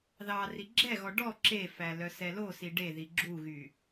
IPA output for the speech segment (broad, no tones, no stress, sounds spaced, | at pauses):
ð ɑ r i ɡ͡ǁ ɛ ɣ ɔ ɖ ɔ ǁ e f æ l œ s ɛ l o s i ɖ e ð i ɡ͡ǁ u ɣ y